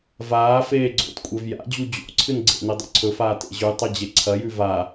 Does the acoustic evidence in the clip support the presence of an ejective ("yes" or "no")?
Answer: yes